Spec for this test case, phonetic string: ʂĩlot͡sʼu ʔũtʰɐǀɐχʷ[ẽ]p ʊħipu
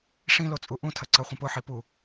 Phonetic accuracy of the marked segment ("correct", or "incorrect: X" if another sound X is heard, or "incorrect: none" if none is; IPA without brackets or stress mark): incorrect: ĩ